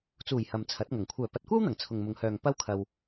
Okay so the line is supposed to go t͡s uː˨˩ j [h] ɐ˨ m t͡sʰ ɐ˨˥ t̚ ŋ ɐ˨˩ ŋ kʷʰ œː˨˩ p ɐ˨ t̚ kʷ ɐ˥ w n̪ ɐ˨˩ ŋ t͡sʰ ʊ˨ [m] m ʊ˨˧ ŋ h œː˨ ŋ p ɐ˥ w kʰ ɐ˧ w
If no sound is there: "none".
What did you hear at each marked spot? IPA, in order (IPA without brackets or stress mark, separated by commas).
h, ŋ